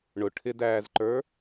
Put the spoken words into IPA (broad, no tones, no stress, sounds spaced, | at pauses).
ɳ ʊ ʈʰ ɪ d æː z ǃ ə˞